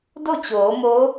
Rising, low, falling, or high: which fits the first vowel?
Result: falling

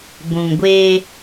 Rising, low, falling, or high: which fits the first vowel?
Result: low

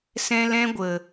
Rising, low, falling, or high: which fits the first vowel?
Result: high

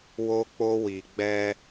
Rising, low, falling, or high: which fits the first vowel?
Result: high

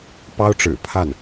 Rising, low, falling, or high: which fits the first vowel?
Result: high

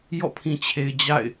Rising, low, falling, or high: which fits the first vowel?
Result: falling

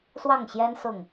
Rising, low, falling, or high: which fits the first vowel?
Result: falling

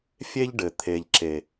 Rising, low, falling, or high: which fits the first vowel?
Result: high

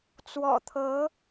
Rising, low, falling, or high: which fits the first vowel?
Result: low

